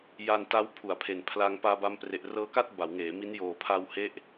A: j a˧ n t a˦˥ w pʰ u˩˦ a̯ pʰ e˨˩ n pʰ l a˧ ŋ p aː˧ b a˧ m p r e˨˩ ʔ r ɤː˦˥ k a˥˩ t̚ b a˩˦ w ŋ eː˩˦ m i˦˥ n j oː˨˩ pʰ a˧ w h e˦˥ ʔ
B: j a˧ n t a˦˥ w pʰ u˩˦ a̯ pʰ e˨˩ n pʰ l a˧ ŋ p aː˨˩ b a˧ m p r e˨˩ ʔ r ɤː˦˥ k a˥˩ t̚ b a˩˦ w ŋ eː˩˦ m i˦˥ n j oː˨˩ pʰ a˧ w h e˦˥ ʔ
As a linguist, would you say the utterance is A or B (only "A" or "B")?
A